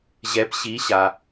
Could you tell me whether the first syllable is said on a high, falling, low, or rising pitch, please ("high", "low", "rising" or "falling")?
rising